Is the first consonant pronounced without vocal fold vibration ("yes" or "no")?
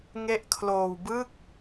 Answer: no